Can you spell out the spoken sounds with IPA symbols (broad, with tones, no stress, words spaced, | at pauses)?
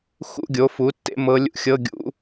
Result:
xṵ˧˥˧ɡʲo˩˥fu˩˥ tːḛ˧˥mɤ˧˥lʲṵ˥˧ xʲɤ˧˥˧ɡʲṵ˧˥